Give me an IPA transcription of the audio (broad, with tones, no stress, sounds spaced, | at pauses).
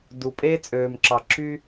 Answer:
d u˩ pʼ eː˥ t͡sʼ øː˩ m ǁ ɑ˩ ǁ y˥